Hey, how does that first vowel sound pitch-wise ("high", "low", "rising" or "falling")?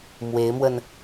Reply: rising